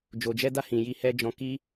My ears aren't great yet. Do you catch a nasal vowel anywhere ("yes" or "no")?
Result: yes